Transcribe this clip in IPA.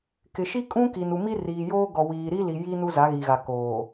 kɪ˨ʃi˦kʼũ˦ ki˨n u˨mi˦ riː˨joː˦ ɡɔ˨wiː˨ɾi˦li˨ ji˦ nu˦za˨˦ɣi˨ɣa˨ koː˨

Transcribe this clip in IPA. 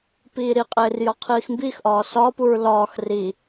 piːɾiqʼeːr jɒqʰiːxmbiːxʔɒː sɒpuɹ lɒːx ri

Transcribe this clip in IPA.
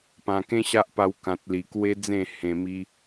pã˨˩kẽ˦ɕa˦ʔpa˧w kã˨t̚li˨˩kwe˦d͡zẽ˥˧ hẽ˧mi˦

